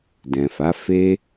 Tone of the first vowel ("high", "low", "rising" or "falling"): low